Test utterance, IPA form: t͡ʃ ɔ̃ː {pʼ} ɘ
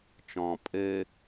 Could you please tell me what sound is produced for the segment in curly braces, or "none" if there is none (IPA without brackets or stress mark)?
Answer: pʼ